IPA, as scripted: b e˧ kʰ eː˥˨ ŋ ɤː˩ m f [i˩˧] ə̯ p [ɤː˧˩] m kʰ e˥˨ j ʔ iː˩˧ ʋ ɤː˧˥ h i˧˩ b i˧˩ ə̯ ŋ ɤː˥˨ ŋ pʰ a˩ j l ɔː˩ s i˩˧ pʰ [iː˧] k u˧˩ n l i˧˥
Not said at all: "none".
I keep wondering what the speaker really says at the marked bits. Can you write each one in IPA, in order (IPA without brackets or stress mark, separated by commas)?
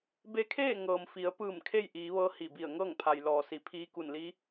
i˩˧, ɯː˧˩, iː˧˥